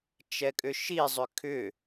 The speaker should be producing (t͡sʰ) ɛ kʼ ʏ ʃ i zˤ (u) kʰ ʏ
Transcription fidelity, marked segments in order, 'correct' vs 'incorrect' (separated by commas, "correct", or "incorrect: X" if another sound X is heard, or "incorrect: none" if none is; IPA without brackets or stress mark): incorrect: t͡ʃ, incorrect: ʏ